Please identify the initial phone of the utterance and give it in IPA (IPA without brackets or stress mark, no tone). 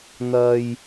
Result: n̪